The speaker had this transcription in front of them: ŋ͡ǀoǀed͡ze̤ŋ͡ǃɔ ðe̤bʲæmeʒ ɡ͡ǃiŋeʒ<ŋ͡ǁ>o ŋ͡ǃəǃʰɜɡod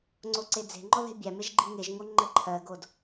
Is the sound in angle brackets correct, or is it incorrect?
incorrect: ŋ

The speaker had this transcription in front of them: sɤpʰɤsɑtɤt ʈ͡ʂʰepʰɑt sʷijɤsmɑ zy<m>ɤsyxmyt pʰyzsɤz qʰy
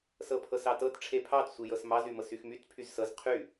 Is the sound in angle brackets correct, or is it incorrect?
correct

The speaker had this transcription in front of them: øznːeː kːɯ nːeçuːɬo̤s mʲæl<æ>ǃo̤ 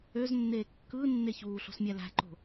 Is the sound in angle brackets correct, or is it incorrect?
incorrect: æ̤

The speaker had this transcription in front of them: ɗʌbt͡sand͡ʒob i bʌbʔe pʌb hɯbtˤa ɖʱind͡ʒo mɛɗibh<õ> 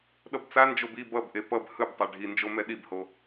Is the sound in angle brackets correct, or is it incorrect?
incorrect: o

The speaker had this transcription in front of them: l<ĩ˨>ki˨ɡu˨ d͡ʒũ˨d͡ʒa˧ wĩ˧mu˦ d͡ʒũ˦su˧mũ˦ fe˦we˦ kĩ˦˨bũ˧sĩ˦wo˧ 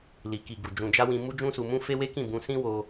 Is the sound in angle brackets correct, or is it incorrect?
incorrect: i˨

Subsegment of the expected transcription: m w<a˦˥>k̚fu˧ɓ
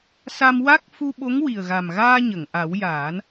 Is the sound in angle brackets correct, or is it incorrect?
correct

